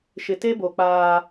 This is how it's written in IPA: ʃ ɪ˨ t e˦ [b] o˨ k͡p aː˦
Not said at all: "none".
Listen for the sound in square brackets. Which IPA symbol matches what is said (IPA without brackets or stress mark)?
b